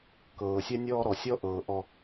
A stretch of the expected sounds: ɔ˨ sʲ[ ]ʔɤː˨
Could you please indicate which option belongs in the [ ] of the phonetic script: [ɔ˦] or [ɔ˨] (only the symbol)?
ɔ˦